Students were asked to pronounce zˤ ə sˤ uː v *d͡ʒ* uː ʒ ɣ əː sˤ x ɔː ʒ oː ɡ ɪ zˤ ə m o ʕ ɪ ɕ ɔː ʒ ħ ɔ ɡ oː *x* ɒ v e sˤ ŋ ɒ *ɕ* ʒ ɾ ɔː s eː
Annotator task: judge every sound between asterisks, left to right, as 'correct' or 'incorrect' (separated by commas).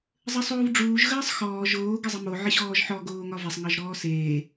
incorrect, incorrect, incorrect